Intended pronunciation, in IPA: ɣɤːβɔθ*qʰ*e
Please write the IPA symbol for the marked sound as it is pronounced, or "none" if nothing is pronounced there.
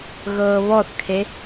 kʰ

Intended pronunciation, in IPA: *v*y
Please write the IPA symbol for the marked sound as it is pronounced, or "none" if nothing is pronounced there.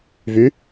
v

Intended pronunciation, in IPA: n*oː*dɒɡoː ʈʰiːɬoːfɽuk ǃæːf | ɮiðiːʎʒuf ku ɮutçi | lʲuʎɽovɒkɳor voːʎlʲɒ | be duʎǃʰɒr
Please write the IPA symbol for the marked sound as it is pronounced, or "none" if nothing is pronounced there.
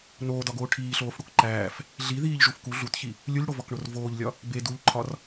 oː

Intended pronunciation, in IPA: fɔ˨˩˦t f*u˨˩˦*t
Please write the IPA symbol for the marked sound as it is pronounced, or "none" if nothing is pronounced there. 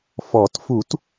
u˨˩˦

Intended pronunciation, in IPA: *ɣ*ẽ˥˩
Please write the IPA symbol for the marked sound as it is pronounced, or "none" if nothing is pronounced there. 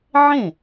ʕ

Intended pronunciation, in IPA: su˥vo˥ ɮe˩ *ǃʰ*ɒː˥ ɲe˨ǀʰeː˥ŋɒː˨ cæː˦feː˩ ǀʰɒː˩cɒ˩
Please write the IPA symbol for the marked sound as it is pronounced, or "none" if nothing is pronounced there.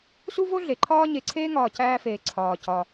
ǃʰ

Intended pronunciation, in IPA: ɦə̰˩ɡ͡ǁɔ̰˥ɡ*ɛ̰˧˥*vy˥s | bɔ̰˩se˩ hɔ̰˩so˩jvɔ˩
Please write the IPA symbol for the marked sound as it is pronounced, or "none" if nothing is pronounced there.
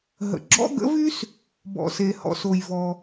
ə̰˧˥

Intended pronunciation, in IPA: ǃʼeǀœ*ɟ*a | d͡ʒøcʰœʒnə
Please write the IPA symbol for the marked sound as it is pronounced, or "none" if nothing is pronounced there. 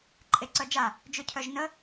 d͡ʒ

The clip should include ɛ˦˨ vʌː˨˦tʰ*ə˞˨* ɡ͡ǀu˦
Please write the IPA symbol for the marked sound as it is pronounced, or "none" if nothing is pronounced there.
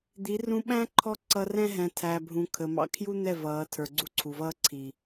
ə˞˨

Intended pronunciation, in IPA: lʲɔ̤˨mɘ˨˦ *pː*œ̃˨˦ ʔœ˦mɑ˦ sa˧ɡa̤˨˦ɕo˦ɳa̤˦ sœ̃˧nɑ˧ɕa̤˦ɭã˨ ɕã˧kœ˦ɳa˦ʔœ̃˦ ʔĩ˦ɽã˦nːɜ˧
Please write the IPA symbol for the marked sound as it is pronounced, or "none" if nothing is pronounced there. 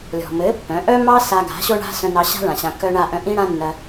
pː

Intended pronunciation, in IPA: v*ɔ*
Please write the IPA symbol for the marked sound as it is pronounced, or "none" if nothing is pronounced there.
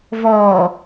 ɔː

